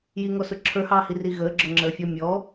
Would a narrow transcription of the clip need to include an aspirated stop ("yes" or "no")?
yes